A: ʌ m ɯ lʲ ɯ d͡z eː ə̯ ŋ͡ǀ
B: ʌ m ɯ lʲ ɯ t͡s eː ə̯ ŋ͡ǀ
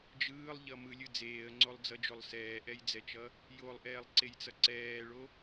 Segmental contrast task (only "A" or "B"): A